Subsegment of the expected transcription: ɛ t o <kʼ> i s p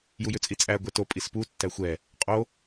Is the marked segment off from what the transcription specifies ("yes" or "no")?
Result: yes